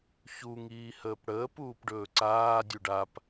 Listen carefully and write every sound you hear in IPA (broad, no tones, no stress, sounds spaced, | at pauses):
ç u ŋ iː h əː p ɽ əː p uː p ɖ ɵː ǀ aː dʲ u ɖ a p